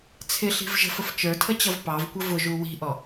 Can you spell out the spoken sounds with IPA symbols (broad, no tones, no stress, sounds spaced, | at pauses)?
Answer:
t͡sʰ ɪ ɬ i̤ v ʒ ə̤ f ə f t͡ʃ ə˞ tʰ ə t͡ɕ ʌ v p ɑ v kʷ ə v ʊ ʒ u w i̤ ʔ ɔ